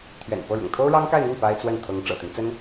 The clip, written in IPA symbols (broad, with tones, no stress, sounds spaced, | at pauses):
t̪ʰ ɥ ɛ̰˨˩ n p ɤ˥˩ ɻ ʊ̰˨˩ ŋ t̪ʰ o˥ ʊ̯ ɻ ɑ˥ ŋ k a˥˧ ɪ̯ n̪ y˥˩ n p a˥ ɪ̯ t͡s w ə˥˩ n t̪ʰ ɤ˧˥ ŋ ʈ͡ʂ ɤ̰˨˩ t̪ i˦ n t͡s ə˥ n